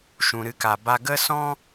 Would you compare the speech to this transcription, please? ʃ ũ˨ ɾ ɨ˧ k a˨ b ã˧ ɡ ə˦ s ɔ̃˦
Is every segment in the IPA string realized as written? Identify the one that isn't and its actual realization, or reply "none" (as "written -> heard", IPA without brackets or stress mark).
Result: ã˧ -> a˧